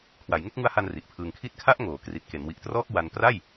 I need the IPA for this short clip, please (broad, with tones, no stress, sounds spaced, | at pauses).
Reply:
kʰ w a˩˦ j ŋ e˥˩ k̚ ŋ u˦˥ a̯ h a˧ n r i˨˩ ʔ pʰ ɯː˧ ŋ kʰ i˦˥ t̚ kʰ a˥˩ ʔ ŋ oː˩˦ k r i˨˩ t̚ k e˩˦ n w i˨˩ ʔ t r ɔː˥˩ k̚ w a˧ n p r a˥˩ j